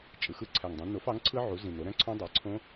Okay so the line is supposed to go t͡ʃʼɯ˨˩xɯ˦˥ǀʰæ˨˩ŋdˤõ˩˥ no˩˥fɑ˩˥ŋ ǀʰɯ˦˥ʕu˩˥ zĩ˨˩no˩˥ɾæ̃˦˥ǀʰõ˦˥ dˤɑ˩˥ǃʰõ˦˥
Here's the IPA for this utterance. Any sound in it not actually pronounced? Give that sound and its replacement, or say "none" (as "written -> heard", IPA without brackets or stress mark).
ǃʰ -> ǀʰ